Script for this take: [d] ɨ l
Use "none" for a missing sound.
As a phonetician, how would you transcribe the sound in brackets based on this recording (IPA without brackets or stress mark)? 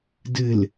d